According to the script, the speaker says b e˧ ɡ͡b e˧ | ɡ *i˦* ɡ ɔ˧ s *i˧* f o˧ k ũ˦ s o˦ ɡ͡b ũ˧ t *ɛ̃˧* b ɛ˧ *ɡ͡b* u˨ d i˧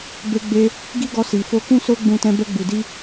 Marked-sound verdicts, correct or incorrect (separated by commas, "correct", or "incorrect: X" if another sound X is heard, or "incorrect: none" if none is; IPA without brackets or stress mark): correct, incorrect: i˨, correct, correct